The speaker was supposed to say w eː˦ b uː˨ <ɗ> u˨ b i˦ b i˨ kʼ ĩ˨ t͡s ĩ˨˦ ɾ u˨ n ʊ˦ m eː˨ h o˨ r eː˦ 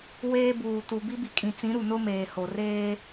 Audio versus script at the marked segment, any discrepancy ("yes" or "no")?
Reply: yes